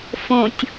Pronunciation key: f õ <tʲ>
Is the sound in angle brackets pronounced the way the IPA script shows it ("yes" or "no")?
yes